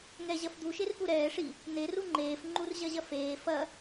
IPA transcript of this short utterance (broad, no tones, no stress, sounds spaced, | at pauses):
ŋ ɛ ʑ ɐ f d̪ u ʃ e r f u ɾ ɛː ʂ i | n̪ e r u ŋ͡ǃ eː f ŋ͡ǃ u r ʑ ɐ ʑ ɐ f eː f ɐ